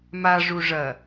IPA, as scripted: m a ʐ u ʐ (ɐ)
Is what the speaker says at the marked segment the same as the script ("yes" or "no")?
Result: yes